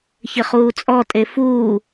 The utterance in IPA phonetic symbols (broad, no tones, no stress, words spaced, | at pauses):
çɪχuːt͡sʼɔ tʼefuː